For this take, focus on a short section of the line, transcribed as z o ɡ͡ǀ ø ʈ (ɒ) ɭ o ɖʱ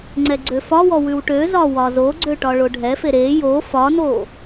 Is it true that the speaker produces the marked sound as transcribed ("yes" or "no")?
yes